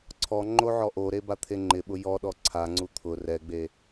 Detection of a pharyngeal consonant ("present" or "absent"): present